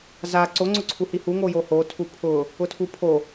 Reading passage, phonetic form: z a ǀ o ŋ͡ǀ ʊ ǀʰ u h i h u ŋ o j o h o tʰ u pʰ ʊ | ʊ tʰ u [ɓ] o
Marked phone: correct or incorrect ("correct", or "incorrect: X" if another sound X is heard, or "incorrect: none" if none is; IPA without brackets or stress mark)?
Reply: incorrect: pʰ